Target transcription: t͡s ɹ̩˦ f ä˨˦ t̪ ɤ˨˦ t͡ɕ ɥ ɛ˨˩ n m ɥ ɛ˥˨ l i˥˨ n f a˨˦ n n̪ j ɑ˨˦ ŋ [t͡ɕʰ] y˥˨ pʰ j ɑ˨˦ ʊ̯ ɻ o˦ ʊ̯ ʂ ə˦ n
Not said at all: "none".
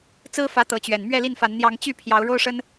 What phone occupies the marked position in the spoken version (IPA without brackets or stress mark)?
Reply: t͡ɕ